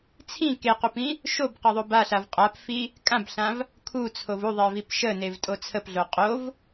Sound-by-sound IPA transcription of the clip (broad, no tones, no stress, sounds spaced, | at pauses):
t͡sʰ ĩ k e q u p ĩ | ʃ o b q ə ðˤ o b a ɬ a v qʼ a p f i | kʼ ã b ɬ ã v | kʰ u t͡sʰ o v u ðˤ e v i p ʃ ə n e v tʼ o t͡sʰ ə p ɮ o qʼ o v